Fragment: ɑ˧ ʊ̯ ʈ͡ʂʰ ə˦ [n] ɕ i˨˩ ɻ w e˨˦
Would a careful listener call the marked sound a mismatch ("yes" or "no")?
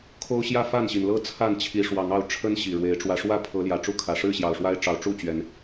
no